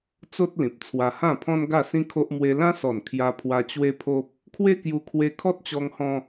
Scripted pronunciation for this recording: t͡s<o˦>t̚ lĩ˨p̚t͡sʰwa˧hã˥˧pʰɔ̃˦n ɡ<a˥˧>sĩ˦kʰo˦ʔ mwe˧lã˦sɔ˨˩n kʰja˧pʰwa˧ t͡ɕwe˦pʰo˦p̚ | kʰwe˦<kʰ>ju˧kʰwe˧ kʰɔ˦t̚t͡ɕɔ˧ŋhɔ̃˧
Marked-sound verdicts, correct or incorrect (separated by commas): correct, correct, incorrect